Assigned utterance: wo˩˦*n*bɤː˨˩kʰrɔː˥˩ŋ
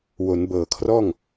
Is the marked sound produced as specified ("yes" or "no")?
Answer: yes